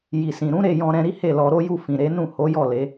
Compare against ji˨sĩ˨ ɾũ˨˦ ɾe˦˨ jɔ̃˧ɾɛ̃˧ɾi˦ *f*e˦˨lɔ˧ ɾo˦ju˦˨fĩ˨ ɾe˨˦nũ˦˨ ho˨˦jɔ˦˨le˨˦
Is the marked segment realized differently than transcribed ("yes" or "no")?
yes